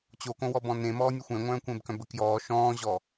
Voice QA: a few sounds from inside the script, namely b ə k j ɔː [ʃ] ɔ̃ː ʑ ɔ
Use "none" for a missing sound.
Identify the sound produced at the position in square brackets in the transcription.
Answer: ʃ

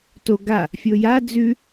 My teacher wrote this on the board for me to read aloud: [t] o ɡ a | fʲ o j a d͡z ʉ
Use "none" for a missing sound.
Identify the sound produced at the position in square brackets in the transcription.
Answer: t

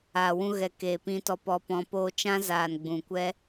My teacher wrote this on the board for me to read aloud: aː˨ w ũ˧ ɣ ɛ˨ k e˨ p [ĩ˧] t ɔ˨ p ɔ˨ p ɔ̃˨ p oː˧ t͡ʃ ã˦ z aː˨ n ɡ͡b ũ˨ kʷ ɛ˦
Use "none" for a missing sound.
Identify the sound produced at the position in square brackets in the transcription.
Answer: ĩ˨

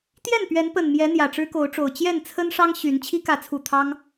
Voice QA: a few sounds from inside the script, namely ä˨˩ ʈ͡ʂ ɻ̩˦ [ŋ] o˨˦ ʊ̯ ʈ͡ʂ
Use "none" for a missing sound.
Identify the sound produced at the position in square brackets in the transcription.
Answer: k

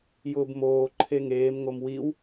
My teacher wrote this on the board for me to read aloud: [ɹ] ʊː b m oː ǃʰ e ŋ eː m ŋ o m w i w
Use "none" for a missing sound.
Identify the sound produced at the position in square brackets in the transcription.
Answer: j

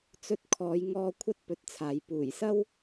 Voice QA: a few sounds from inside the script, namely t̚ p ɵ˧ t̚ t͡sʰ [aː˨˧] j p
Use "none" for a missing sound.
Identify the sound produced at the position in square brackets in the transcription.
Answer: aː˨˧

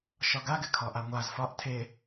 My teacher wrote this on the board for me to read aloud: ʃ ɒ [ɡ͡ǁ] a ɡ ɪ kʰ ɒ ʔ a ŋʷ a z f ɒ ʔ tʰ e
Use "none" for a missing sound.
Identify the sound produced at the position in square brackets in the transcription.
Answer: ɡ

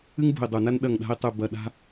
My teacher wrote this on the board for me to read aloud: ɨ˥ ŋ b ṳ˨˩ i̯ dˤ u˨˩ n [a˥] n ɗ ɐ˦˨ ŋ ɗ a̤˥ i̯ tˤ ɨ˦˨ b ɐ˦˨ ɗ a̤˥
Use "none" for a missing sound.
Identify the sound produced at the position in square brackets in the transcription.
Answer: a˥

